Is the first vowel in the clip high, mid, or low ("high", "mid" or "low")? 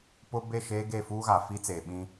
high